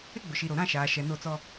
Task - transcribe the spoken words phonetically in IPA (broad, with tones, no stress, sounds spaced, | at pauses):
ɪ˦ ɡ͡b ʊ˨ ʃ i˨ ɾ o˨ ɾ ã˦˨ ʃ aː˨ ʃ ɛ˨ n o˦˨ t͡s ɔ˦